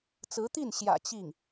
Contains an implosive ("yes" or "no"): no